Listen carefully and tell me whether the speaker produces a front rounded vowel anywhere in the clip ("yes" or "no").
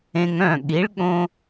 yes